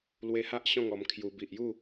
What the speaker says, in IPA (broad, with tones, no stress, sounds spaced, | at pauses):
l w e˧ h a˦ ʔ ɕ ɔ̃˥˧ ŋ ɔ˧ m kʰ j u˧ b i˨ ʔ j u˥˧